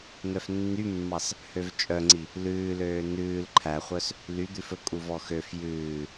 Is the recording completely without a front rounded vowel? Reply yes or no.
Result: no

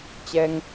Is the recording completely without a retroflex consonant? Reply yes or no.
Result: yes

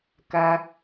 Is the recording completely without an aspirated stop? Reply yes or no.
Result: yes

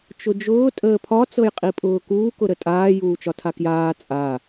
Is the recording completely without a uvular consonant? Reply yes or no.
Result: no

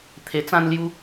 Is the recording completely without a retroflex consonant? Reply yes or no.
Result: yes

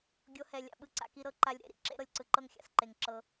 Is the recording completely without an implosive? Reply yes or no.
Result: no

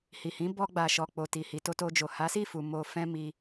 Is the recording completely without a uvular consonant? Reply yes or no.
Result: yes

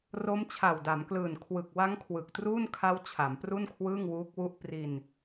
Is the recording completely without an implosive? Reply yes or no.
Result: yes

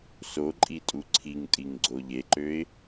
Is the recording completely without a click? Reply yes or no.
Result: no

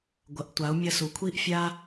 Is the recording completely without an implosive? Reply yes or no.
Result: yes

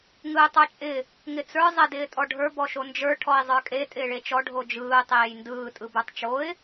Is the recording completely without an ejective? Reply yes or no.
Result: no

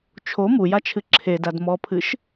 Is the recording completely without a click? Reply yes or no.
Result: no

